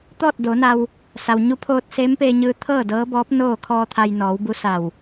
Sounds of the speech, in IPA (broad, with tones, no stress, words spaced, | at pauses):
t̪ɔː˥˨t̚ doː˩˧na˧w | sa˩wɲu˧˥pʰoː˧t̚ seː˧˥mpeː˧ɲɯː˧ t̪ʰɤː˥˨dɤː˧˥bɔː˧˥p̚ noː˥˨ kʰɔː˧ t̪ʰa˧jnɔː˩˧wbu˧˥ sa˧˩w